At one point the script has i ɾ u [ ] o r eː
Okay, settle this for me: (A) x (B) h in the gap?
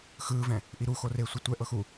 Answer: A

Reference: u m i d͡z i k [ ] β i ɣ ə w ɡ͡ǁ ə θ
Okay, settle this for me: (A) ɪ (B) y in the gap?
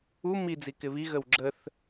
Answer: A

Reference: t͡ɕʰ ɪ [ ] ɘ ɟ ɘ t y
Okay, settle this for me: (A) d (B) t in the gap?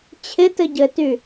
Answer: B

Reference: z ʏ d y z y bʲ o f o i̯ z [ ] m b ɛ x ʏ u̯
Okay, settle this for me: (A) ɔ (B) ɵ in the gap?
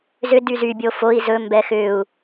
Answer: B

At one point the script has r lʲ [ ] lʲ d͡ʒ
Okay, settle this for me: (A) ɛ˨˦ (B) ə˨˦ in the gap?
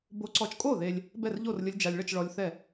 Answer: B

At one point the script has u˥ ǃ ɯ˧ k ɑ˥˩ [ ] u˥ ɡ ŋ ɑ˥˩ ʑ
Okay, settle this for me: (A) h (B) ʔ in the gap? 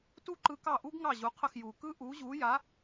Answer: B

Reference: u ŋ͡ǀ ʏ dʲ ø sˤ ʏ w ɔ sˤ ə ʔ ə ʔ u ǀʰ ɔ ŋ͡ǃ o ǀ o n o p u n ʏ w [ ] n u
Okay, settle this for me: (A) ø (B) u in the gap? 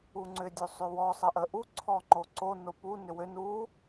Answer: A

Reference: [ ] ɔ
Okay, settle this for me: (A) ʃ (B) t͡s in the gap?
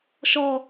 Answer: A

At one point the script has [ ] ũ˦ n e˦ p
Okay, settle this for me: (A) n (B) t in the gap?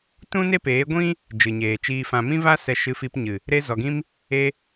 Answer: B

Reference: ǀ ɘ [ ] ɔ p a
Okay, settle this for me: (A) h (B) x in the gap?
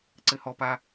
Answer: A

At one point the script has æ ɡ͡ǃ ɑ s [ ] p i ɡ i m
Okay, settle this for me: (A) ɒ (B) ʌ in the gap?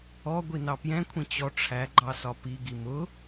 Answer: A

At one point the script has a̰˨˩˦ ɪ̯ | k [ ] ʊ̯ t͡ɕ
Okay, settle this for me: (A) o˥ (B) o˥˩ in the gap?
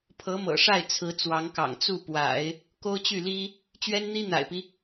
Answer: A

